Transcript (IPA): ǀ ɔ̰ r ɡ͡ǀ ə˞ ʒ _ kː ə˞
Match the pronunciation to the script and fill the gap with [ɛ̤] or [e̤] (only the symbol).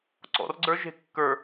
e̤